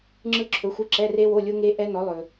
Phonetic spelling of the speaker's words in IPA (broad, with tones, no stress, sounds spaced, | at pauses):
ŋ͡ǁ ɯ˦˥ ǁʰ ɵ˨˥ xʷ ɯ˧˥˧ ǁ ɛ˧˥˧ r e˦˥ w o˧˥˧ lʲ o˦˥ ŋ e˦˥ ʔ ɛ˦˥ n ɔ˨˥ lˠ ɵ˨